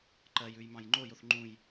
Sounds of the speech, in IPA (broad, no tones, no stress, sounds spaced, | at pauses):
ǃ ɜ j ʉ j m ɑ̃ j ŋ͡ǃ o j o θ ŋ͡ǃ ũ j